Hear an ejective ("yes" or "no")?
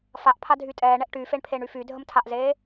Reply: yes